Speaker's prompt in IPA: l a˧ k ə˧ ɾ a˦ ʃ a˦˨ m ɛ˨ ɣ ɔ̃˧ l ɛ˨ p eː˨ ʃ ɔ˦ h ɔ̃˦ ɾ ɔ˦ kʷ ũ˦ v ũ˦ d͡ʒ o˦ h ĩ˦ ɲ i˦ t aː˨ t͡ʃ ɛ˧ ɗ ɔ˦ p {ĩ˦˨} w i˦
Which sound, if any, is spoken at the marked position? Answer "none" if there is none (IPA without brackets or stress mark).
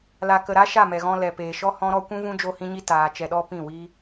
ĩ˦˨